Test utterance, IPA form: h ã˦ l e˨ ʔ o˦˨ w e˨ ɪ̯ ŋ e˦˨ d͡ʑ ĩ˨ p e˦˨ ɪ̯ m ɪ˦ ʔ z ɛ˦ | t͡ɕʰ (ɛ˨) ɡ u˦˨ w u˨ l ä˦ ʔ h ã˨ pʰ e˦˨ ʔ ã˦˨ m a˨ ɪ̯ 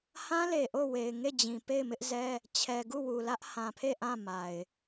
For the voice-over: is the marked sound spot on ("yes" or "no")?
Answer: yes